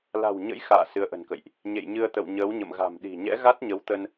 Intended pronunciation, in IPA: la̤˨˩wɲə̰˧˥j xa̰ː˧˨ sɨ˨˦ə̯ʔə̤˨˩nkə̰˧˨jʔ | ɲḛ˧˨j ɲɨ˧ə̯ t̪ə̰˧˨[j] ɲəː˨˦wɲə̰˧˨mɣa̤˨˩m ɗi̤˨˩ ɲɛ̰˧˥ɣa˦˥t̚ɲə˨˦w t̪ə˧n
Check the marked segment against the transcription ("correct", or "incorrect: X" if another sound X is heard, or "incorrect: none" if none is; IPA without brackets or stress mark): incorrect: w